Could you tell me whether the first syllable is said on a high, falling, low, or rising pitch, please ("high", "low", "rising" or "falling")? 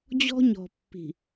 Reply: high